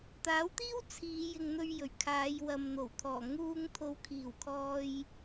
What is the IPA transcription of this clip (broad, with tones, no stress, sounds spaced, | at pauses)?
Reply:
t̪ aː˨˥ w t̪ iː˥ w t͡sʰ iː˨˧ j ɪ˨ ŋ n̪ ɵ˧ ɥ j ɵ˨˩ ɥ kʰ aː˨˧ j w ɐ˨ m n̪ o˨˩ w t̪ʰ ɔː˨˩ ŋ uː˧ ŋ t̪ʰ o˨˧ w kʰ iː˨˩ w kʰ ɔː˧ j